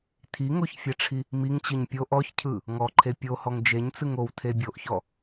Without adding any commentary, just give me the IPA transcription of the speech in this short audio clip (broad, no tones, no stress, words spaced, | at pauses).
tʰiŋoçfʲɛʈ͡ʂʰi | miŋt͡ɕɯɲ pʲoʔ ɔçcʰɯ | ŋɔǃʰe pʲohɔŋ d͡ʒeɲt͡sɯŋ owtʰe bʲoʔçɔ